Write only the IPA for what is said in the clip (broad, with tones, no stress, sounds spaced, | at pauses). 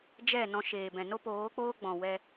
d͡ʒ ɛ˦˨ n ɔ̃˧ ʃ eː˨ b ɛ̃˨ n o˦ p oː˨˦ k͡p oː˦ ɡ͡b ɔ̃˨ w ɛ˧